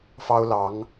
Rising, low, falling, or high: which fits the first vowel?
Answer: high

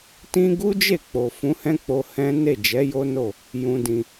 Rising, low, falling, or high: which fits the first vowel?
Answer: high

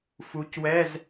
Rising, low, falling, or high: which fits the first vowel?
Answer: rising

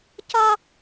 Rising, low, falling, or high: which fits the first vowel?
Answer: high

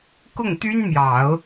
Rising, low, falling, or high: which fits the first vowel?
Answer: falling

